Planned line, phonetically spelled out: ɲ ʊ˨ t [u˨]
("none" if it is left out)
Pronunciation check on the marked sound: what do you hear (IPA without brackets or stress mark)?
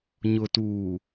uː˨